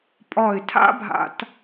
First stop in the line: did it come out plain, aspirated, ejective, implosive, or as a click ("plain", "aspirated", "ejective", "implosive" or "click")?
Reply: ejective